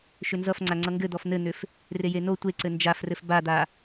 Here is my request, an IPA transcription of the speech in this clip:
ʃ ʏ n z ʌ f ŋ͡ǀ a ŋ͡ǀ ʌ ŋ ɡ ɘ d̪ ɔ f n̪ ɘ n̪ ʏ f | r e j e n o tʷ e ǀ ɘ n d͡ʒ a f r ɘ f b a d̪ a

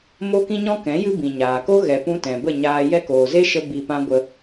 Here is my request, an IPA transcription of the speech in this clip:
m o˦ k ĩ˦ ɲ ɔ̃˦ k ɛ̃˨˦ j ɨ˦ b ĩ˨ ɲ aː˨ k o˦ ɣ ɛ˨ p ũ˧ t ɛ̃˨ b ə˦˨ ɲ aː˧ j ɛ˦ k oː˨ z e˦ ʃ ə˧ b i˧ p ã˦ ɡʷ ə˧

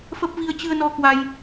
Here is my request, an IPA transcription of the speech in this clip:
f ə˦˥ p̚ v i˧ ə̯ t͡ɕ ɨ˧ ə̯ n ɔ˧ k w a˧ j

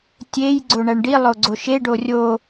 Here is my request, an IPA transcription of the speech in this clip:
tʲ e j ɡ͡ǀ o ɳ æ ɳ ɖ i lˠ o ɡ͡ǀ o ʃ e ɖ o rʲ o

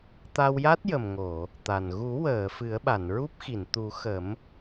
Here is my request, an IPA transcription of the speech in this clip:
t̪ a˧ w j a˦˥ t̚ j ə˨˩ m ŋ o˨˩˨ | t̪ a˨˩ n ɣ u˨˩˦ w əː˨˩˨ f ɨ˨˩˦ ə̯ ɓ a˨˩˨ n ɹ u˦˥ p̚ x i˨˩˨ n t̪ u˨˩˦ x ə˨˩˦ m

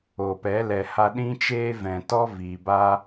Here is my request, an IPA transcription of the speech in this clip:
o˨ p ɛ˨˦ l ɛ˨ h a˧ ɗ ĩ˦ t͡ʃ eː˦ v ɛ̃˨ t ɔ˦ v iː˨ b a˦

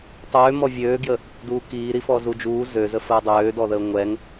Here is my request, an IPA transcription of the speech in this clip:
tˤ øː m ɔ vʲ øː ɡ j ə | d uː k iː ɾ i f ɔ z u d͡ʒ uː z ø z ə f əː dˤ øː d ɔ ð əː ŋʷ ɛ ŋ

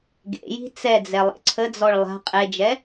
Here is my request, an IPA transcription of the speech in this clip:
ɡ ḛ j i̤ t͡s ɛ d͡z ɛ lˠ ḛ ǀʰ ə d͡z ɔ ɭ lˠ a̤ qʼ e d͡ʒ ɛ

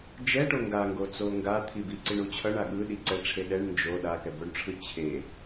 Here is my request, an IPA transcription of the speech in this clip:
d͡ʒ ɛ ʈ o ŋ ɡ a ŋ ɡ o t͡s o ŋ ɡ a t̪ʰ i b i ǀ i ɳ u t͡ɕʰ ʌ ɳ a ɠ ɯ ɗ i ǀ ɛ ʈ͡ʂʰ e ɗ ɛ ɳ n d͡ʒ o ɗ a k ɛ b o ɳ ʈ͡ʂʰ ɯ t͡ɕʰ e

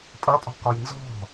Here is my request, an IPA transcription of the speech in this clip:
pʼ ʌ pʼ ɔ̤ k ɒ j n z ɔ̤

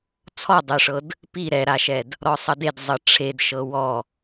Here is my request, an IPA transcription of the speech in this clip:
t͡sʰ ɔ dˤ ɛ ʂ ɤ d | p i ɾ ɛ ɾ a ʃ ɛ d | ɾ ɔ sˤ ʌ d e d zˤ ʌ ʈ͡ʂʰ e d ʃ ɤ w ɔ

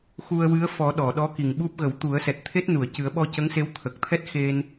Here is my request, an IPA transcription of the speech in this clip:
x u˧ ə̯ w ɨ˧˥ ə̯ f ɔ˨˩˦ ɗ ɔ˨˩˨ ɗ ɔ˧˥ k i˨˩ ŋ ɓ u˦˥ p̚ ɣ ə˨˩˦ w t̪ u˨˩˦ ə̯ s ɛ˨˩ t̚ t̪ʰ e˦˥ t̚ n u˨˩˨ ə̯ c ɨ˨˩˦ ə̯ ɓ ɔ˧ c ə˧˥ ŋ s e˧˥ w t̪ʰ ə˨˩ k̚ t̪ʰ ɛ˦˥ t̚ x e˧ n

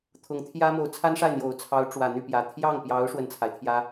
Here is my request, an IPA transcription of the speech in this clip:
t̪ʰ ʊ˧˥ ŋ t̪ʰ j ä˥ m o˧˥ ʊ̯ t͡sʰ a˥ n ʂ a˥˩ ɪ̯ n̪ j o˨˩ ʊ̯ t͡sʰ ɑ˧˥ ʊ̯ ʈ͡ʂ w ä˨˩ n̪ y˥˩ p j ä˨˩ t̪ʰ j ɑ˥˩ ŋ p j ɑ˧˥ ʊ̯ ʂ w ə˥˩ n t͡sʰ a˩ ɪ̯ t̪ʰ j ä˧˥

